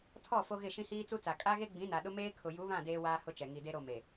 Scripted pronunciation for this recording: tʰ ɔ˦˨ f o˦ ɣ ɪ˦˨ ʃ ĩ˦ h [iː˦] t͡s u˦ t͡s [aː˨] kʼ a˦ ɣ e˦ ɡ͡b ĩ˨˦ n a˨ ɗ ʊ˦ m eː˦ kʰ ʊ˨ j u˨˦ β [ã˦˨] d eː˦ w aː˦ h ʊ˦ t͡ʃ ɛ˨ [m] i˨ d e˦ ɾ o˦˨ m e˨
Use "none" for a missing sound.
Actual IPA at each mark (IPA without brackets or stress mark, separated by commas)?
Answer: iː˦, a˨, ã˦˨, ŋ